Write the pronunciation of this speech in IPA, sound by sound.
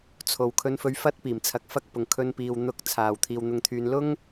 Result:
t͡sʰ o˨ w kʰ ɵ˧ n f ɵ˧ ɥ f ɐ˥ t̚ p iː˨˩ m t͡sʰ ɐ˧ k̚ f ɐ˥ k̚ p ʊ˨˩ ŋ kʰ ɵ˧ n p iː˨ w n̪ ʊ˧ k̚ t͡sʰ aː˨˩ w t̪ʰ iː˨ w n̪ ʊ˧ ŋ t̪ʰ yː˨˧ n l ʊ˥ ŋ

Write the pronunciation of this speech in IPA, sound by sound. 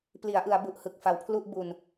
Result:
p l i˩˦ a̯ ʔ ɯ˩˦ a̯ b u˨˩ ʔ h ɯ˨˩ k̚ f a˩˦ w pʰ l u˥˩ ʔ b u˧ n

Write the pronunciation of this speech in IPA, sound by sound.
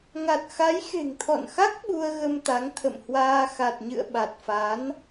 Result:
ŋ a˨˩ t̚ x a˨˦ j x e̤˨˩ ŋ t̪ʰ ɔ̰˧˨ n x a˦˥ k̚ ɓ u˧ ə̯ ɣ ə˧ m t̪ a˨˦ ŋ t̪ʰ ə̰˧˨ m h w aː˧ x a˨˩ t̚ ɲ ɨ̰˧˨ ə̯ ɓ a˨˩ t̚ f a˨˦ n

